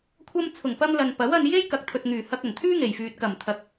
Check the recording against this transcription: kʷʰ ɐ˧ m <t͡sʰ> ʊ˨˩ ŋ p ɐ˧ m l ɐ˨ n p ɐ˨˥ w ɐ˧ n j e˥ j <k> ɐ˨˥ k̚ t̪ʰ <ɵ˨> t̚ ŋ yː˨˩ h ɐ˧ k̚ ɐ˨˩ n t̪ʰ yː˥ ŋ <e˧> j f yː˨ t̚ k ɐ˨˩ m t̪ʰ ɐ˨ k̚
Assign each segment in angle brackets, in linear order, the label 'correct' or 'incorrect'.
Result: correct, correct, correct, incorrect

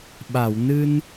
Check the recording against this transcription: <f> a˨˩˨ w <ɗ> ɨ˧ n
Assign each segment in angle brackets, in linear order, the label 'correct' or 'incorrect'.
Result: incorrect, incorrect

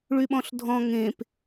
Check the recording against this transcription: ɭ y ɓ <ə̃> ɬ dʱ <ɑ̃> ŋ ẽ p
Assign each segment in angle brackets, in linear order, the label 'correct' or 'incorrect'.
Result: incorrect, incorrect

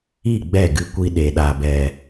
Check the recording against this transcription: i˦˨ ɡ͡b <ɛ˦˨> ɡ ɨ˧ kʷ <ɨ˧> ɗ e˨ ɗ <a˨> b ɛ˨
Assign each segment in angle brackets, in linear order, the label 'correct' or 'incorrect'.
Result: correct, incorrect, correct

